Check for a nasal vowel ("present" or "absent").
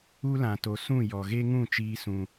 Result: present